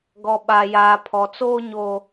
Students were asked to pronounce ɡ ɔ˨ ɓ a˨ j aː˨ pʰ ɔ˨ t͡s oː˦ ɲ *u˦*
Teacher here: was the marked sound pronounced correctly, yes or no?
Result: no